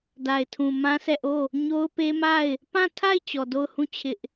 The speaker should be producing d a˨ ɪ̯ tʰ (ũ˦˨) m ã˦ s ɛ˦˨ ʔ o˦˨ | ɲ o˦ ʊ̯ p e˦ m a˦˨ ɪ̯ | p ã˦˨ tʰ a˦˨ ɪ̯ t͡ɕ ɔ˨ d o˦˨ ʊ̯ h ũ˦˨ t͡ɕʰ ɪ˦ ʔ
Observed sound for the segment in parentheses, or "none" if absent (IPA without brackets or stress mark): ũ˨